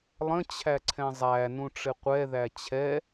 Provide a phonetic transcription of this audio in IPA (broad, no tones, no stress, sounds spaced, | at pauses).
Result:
lˠ ə̃ t͡ɕʰ æ ǀʰ ɛ̃ zˤ æ n ũ ʈ͡ʂ ɪ qʷ ɛ ð æ t͡ɕʰ ɛ